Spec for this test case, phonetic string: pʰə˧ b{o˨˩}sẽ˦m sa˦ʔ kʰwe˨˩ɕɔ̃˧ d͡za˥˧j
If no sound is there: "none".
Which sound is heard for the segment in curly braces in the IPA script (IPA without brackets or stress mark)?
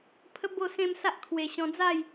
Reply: o˥˧